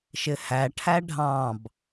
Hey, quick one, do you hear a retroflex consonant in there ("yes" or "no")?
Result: yes